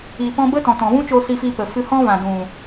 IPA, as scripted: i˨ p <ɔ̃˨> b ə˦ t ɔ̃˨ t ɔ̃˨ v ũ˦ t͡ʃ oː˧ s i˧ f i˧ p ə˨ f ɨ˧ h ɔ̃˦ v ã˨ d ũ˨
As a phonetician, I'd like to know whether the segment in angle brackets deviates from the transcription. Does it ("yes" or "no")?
yes